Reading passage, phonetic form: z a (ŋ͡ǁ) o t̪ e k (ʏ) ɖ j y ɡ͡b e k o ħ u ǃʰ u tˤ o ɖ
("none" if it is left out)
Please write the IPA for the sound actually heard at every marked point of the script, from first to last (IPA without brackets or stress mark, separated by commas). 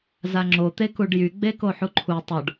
ŋ͡ǁ, u